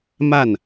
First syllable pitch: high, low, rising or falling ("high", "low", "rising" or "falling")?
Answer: falling